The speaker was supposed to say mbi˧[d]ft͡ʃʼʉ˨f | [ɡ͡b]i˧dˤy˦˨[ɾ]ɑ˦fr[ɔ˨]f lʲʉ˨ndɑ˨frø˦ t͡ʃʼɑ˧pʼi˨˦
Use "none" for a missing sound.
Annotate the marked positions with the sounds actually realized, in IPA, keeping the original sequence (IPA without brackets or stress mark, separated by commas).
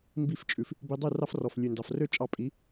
none, b, r, ɔ˨